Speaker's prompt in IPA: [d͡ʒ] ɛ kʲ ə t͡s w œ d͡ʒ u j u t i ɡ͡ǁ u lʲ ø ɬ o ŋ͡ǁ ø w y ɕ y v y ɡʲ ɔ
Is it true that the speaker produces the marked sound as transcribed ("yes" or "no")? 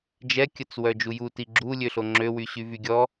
yes